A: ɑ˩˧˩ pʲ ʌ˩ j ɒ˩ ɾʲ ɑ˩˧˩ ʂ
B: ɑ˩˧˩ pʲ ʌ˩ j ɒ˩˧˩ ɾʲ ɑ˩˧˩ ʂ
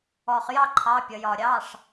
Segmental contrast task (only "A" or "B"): A